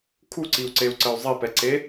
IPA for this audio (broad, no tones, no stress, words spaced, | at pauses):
kʰuǀiu̯ǀeu̯ǀəy̯ zˤipɛǀe